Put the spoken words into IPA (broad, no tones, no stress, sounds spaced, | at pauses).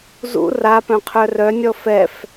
z ṵ r a p œ̃ qʰ œ r œ nʲ ɔ f ɛ f